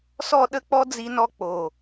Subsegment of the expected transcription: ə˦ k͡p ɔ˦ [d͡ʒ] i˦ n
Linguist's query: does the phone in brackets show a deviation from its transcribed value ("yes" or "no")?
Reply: yes